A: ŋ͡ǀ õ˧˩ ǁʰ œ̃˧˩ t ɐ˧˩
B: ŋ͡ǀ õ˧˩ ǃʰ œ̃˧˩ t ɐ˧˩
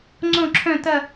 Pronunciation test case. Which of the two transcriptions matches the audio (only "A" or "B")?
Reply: A